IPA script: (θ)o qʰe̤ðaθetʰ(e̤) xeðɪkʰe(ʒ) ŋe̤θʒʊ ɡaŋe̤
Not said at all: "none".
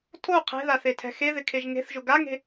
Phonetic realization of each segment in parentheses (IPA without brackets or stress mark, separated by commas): tʰ, ɛ̤, ʒ